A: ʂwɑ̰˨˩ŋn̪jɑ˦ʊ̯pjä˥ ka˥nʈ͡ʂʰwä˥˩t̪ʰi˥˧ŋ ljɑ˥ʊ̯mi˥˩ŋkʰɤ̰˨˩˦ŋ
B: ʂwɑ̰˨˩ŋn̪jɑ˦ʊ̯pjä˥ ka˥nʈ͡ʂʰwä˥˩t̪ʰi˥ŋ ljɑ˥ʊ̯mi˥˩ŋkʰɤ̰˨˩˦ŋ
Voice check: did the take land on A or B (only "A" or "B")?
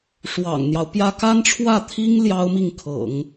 B